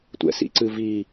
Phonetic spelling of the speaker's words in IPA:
tʷ ɛ̰ s ḭ ǀ ɨː v iː

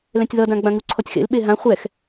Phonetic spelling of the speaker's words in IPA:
l ɛ̃ tʲ ð ʌ d ã ɡ͡b ã ŋ u ǀʰ ɔ tʲ x ḛ l ɓ e ɦ ã χʷ ɛ x

